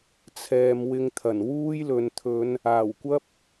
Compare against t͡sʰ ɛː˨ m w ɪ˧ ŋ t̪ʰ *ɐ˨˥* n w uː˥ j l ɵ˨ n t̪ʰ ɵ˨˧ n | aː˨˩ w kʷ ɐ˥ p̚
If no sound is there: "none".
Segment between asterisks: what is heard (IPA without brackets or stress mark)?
ɐ˨˩